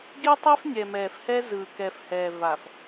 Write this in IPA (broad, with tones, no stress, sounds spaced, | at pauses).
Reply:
ɡ i˦ tˤ e˦ f nʲ ɛ˨ m ɛː˨ f h ɛ˦ z ɯː˨ k ɛ˨ f h ɛː˨ v a˨ f